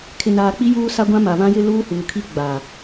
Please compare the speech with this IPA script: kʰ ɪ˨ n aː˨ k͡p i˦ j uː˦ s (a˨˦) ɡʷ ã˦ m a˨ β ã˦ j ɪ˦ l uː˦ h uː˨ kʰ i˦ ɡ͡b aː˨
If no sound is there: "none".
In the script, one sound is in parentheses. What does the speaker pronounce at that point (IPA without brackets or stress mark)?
a˦